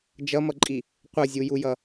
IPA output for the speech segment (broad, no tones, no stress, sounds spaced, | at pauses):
d͡ʒ ʌ m ʌ ǃʼ i | qʷ ʌ zʲ u j u j ʌ